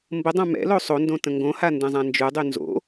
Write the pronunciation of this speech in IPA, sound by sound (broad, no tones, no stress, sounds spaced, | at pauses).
m b ə dˤ ã m ɛ̰ l o sˤ o n d õ t ə̃ ŋ ɡ õ h a n d ɛ̃ zˤ ã n d͡ʒ ʉ dˤ y n z o̰